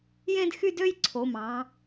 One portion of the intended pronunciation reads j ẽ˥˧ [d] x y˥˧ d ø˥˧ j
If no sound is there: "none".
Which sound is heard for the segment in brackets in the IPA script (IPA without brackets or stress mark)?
d